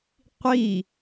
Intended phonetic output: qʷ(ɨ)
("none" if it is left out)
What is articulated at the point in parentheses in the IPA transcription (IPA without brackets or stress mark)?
i